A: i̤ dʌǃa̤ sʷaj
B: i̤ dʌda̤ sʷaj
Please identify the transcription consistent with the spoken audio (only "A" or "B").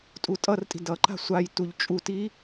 A